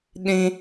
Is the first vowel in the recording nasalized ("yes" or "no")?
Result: yes